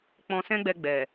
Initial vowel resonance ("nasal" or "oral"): nasal